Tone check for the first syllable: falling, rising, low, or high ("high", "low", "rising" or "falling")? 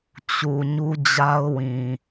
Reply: low